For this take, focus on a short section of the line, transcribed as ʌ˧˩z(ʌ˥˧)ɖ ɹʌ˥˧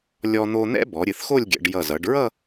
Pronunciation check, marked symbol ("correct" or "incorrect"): incorrect